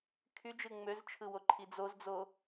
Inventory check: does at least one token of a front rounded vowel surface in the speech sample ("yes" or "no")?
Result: yes